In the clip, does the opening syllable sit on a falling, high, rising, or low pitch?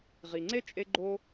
low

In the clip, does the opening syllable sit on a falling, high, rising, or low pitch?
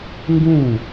falling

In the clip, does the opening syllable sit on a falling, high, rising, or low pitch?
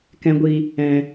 low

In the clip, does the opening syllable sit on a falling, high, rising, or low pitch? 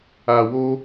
low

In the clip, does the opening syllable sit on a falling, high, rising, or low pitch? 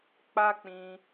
high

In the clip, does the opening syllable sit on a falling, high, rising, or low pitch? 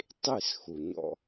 falling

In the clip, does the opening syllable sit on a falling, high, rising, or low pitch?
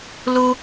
high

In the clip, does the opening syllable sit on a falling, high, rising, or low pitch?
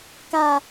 high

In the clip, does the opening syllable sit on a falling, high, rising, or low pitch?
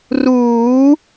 rising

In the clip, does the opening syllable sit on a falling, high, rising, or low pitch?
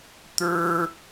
high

